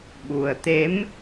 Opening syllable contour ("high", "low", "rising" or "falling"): low